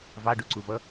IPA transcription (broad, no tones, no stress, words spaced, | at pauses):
vɑɖuǀuvʌ